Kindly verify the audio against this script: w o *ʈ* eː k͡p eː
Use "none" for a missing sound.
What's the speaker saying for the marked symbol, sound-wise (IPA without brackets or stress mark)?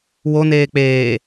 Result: n